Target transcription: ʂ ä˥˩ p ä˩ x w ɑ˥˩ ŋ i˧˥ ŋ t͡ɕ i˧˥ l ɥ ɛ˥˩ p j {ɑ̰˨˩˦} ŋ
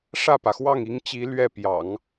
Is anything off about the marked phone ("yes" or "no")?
no